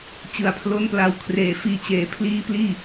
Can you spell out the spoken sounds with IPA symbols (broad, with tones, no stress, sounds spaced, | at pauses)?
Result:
t͡ɕ ɯ˨˩ a̯ pʰ l o˦˥ n p l a˧ w kʰ r eː˨˩ f iː˧ t͡ɕ eː˨˩ pʰ l iː˦˥ p l iː˥˩